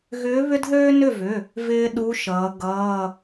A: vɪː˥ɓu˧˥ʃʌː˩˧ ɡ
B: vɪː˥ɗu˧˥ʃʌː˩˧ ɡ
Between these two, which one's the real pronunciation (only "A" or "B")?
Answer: B